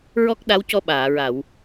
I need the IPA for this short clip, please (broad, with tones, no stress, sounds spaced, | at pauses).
ɹ ɔ˦˥ k̚ ɗ a˧˥ w c ɔ˧ ɓ aː˨˩˨ ɹ a˨˩˨ w